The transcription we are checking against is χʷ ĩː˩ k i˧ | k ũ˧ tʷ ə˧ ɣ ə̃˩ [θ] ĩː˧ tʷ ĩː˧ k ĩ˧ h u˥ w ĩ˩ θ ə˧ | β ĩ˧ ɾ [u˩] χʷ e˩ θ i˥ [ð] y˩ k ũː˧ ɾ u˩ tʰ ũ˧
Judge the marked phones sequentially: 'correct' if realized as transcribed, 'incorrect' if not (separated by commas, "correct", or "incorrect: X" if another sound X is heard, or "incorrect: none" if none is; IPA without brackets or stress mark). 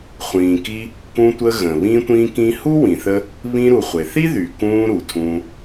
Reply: incorrect: β, correct, correct